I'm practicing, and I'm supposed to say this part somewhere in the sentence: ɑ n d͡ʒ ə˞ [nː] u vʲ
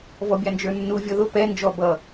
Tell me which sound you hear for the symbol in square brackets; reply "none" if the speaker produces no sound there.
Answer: nː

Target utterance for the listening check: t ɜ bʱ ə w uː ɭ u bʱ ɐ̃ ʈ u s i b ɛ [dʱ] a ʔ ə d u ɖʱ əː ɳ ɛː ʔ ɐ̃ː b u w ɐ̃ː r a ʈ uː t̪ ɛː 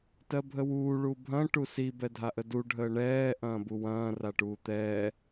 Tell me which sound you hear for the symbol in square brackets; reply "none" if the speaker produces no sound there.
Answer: dʱ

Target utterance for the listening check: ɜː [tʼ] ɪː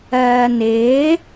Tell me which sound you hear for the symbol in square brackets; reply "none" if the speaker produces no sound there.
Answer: n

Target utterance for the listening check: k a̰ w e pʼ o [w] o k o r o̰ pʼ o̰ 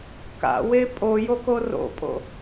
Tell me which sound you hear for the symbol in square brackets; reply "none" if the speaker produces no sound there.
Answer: j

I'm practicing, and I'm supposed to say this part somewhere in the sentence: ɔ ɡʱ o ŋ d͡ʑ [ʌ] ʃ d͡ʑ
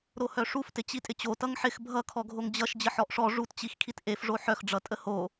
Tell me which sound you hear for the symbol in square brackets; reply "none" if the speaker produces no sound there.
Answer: ʌ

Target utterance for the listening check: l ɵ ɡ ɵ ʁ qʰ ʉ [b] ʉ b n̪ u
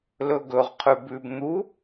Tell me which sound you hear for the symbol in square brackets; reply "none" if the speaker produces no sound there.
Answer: b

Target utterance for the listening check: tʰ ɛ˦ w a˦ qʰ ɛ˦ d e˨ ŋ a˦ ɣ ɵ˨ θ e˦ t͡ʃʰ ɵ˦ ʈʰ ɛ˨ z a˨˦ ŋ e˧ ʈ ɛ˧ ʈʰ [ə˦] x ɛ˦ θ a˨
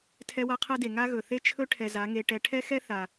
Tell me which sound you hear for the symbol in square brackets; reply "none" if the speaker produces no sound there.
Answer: ɛ˦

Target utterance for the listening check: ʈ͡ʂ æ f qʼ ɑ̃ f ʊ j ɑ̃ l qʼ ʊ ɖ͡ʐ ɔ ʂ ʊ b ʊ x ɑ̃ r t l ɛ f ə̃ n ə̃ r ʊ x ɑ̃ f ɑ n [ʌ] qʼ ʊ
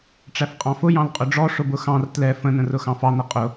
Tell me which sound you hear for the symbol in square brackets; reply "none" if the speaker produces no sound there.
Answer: ʌ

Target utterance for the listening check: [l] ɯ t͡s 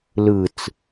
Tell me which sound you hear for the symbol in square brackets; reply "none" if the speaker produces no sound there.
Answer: l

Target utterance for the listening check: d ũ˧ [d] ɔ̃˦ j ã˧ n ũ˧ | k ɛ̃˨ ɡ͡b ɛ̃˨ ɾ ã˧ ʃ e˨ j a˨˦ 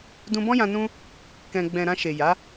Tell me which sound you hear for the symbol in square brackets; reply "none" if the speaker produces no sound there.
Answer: b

